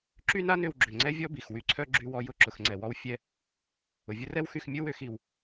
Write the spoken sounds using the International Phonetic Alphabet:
ǁ y˥ n a˥ n ʏ˧ w ɡ͡ǁ ʏ˩ ŋ͡ǀ ɛ˥ vʲ ɔ˥ b i˩ x w y˧ ǀʰ œ˥ ɡ͡ǁ y˧ w ɔ˧ j ʊ˧ ǁ ʊ˩ x ŋ͡ǀ ɛ˩ w ɔ˧ w fʲ ɛ˧ | ʊ˩ vʲ ʊ˥ r ɛ˥ w x y˧ x mʲ ʊ˥ w ʏ˧ x i˩ w

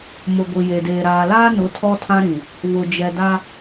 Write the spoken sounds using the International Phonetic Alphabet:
m ʊ˨ ɡʷ i˨ j e˨ d eː˨ ɾ aː˨ l aː˦ n ʊ˨˦ tʰ ɔ˦ tʰ ã˦ ɾ ĩ˨ | β ʊ˨ d͡ʒ ɛ˨ d a˦

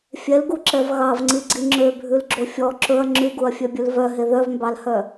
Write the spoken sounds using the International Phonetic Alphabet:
fʲ ɛ l ɡ u ǁ ɛ v ɣ ɑ v ŋ͡ǀ i ɡ͡ǀ i ŋ͡ǁ ø bʱ ʉ l ɡ͡ǁ o fʲ ɔ ǁ ɵ ɐ̯ ŋ͡ǁ y ɡ u ɐ̯ fʲ œ bʲ ʉ l v œ ɦ e ð œ v m b ɑ l h œ

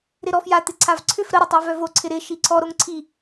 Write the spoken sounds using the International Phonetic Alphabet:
ɾ ɪ ɾ ɔ f j a t̪ ɪ ǀʰ a v ǀʰ ʏ f ɾ ə ɾ ɪ tˤ e v œ v o ǀʰ ɪ ɾ ɪ ʃ i ǀʰ ɔ ɾ o ŋ ǀʰ i

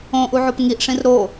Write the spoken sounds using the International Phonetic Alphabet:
õ ʔ u ʕ o p ŋ i ʔ ʂ ĩ r ɾ o

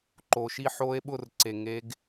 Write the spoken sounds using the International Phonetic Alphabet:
ǃ o˧ ʃ i˥˧ ħ o˦˥ e̯ ɓ ʊ˥˧ r ǀ e˧ ŋ e˦˥ ɡ

